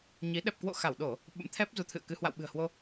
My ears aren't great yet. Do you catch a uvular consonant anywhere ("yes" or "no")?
no